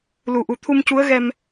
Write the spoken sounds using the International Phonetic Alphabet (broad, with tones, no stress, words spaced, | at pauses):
lu˨˩ʔu˨˩ t̪ʰu˧mcu˧˥ə̯ɣɛ˧m